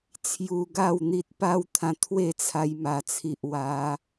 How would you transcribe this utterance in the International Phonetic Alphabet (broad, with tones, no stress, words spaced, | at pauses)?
t͡sʰju˧ɡa˥˧wn̪i˦t̚ pa˦wt̪ʰã˧t̪ʰwe˥˧ t͡sʰa˧jma˨˩t͡sʰi˨ʔwa˨˦